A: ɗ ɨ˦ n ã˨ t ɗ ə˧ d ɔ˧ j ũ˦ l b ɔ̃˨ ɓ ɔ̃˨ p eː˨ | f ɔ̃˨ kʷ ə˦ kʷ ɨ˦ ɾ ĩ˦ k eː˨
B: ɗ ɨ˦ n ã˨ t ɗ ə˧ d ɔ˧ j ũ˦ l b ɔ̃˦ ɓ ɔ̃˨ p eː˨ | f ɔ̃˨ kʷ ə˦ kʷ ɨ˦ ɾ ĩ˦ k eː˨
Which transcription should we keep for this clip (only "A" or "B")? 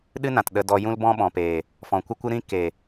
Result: B